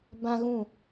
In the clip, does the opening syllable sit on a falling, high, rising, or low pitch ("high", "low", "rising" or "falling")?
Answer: high